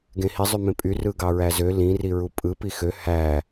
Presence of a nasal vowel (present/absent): present